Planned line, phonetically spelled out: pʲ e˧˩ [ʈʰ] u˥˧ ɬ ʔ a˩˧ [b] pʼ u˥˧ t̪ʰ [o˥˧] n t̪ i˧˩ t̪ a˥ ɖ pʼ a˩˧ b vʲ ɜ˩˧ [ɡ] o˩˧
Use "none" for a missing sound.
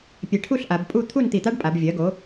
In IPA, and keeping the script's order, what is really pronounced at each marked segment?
ʈʰ, b, u˥˧, ɡ

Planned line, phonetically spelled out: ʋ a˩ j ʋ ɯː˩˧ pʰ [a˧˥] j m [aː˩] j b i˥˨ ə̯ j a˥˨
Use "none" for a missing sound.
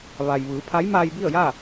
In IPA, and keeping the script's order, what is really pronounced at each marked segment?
a˧˥, aː˧

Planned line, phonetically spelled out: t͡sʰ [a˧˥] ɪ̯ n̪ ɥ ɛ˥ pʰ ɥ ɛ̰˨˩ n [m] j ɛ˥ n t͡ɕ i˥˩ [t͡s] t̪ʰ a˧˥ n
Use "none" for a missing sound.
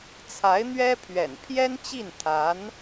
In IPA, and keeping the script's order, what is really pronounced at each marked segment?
a˧˥, pʰ, n

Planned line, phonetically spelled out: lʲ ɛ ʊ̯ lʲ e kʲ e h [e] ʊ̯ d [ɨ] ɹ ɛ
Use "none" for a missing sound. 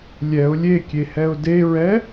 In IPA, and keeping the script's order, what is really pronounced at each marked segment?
ɛ, e

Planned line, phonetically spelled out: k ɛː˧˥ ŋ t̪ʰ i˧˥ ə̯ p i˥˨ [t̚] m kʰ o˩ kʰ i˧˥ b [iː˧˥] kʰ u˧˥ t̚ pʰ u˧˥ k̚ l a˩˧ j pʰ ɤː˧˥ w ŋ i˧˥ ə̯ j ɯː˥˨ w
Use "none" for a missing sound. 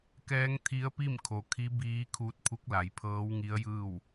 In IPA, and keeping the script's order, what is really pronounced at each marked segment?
none, iː˧˥

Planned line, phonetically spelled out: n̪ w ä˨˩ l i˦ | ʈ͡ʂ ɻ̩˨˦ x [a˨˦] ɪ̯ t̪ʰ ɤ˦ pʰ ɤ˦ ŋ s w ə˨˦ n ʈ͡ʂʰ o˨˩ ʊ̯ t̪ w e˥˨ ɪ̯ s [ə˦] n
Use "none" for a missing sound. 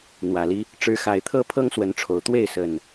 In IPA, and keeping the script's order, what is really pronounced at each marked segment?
a˨˩, ə˨˩

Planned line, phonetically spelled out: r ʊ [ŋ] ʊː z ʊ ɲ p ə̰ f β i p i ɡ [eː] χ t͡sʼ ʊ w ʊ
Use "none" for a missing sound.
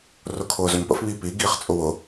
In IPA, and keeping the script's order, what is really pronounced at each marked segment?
kʰ, iː

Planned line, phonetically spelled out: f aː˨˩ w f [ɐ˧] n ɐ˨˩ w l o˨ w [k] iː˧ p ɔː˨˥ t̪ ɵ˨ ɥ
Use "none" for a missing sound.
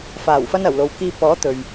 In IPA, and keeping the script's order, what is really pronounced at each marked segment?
ɐ˧, k

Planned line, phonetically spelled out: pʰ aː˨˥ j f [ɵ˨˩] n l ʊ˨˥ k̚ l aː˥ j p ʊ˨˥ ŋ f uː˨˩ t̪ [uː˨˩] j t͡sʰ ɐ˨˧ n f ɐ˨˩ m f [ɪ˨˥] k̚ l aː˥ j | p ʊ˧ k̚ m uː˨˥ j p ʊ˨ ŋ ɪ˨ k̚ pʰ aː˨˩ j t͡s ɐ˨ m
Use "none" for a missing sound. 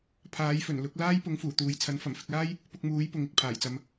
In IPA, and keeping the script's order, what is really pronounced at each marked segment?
ɵ˨˩, uː˨, ɪ˨

